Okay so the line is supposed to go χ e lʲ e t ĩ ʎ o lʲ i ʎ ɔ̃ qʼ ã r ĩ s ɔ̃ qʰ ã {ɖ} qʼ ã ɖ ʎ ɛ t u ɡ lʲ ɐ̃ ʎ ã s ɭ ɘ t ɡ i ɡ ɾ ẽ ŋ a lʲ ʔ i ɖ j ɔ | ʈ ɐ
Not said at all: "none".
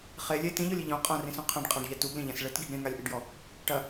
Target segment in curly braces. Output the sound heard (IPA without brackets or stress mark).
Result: ɖ